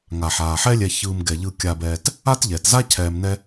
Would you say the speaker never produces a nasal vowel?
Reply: yes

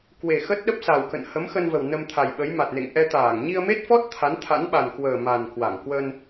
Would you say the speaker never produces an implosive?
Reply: no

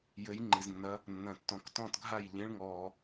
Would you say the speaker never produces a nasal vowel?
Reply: no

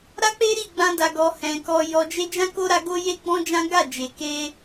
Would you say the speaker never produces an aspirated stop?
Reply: yes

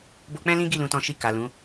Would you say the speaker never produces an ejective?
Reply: yes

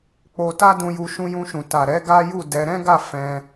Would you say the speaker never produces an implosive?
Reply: yes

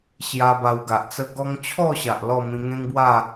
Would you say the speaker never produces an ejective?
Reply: yes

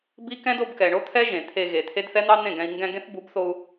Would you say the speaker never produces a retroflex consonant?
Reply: no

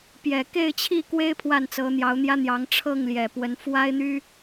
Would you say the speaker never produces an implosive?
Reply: yes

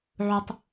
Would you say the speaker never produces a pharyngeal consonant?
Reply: no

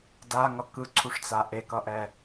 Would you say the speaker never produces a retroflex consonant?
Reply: no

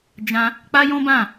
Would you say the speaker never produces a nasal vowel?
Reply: no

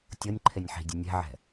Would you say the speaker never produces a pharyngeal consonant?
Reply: no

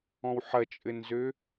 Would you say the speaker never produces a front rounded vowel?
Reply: no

